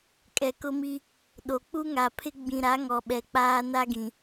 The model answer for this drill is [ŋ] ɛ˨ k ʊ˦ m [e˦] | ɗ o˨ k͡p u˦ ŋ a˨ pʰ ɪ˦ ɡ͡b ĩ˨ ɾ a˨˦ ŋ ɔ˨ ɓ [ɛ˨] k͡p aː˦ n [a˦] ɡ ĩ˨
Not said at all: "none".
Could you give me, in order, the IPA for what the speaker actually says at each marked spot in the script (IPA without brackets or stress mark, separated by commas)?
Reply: kʼ, i˦, ɛ˨, a˦